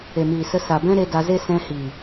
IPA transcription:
e˨ m iː˨ s ə˧ s a˨ b ɛ̃˦ ɾ e˧ d a˧ z e˦ s ɛ̃˧ h i˨

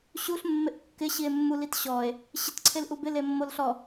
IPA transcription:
ɕ u ɬ mː ɪ ʔ kː ɪ ɕ i e̯ mː u l i t ɕ ɔ e̯ | ɕ ɪ t ǀʰ e l ʔ u b ɪ l e mː o l ɬ ɔ

